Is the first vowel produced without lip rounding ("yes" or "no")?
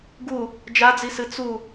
no